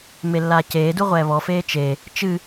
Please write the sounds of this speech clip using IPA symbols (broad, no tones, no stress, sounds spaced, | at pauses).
m e lː aː c eː d u ʁʷ ɛː β ɔ f eː t͡ʃ e | t͡ʃ ɨ